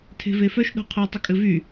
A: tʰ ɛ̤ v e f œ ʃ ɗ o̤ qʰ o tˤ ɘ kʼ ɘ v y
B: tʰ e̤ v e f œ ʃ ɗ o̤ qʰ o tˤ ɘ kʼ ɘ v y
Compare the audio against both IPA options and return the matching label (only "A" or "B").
B